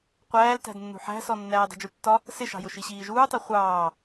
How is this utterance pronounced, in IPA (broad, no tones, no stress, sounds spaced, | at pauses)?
qʷ æː l t æ̤ d nː ṳ ħ æ̤ s ɔ nː æː dˤ i̤ d͡ʒ u tː ɒ | s ɪ ʃ ɑ̤ j ʊ ʃ i ɕ iː ʒ uː tˤ ɛ χʷ ɑː